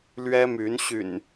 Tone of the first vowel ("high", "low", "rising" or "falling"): high